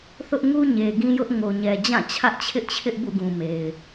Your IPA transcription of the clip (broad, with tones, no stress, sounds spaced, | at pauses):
θ ʊ˦ ʔ ŋ u˦ ɲ e˨ ɡ ĩ˦ j ʊ˦ ʔ ŋ o˨ ɲ ɛ˨ d͡ʑ ã˦˨ t͡ɕʰ ä˦ ʔ t͡ɕʰ ɪ˦ ʔ t͡ɕʰ ɪ˦ ʔ b ṵ˦˨ ɡ ũ˨ m e˨ ɪ̯